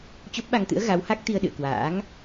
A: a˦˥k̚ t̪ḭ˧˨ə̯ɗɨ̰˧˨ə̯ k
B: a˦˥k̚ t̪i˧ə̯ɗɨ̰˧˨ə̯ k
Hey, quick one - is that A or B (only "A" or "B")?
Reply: B